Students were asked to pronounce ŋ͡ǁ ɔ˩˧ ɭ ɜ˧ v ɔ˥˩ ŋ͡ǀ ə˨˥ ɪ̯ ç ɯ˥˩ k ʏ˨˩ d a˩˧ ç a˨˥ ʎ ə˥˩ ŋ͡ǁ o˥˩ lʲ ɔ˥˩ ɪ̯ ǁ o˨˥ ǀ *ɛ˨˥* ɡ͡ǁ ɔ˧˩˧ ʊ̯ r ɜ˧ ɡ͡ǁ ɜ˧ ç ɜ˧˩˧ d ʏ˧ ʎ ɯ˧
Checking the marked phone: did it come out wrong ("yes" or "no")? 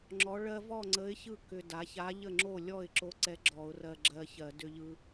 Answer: no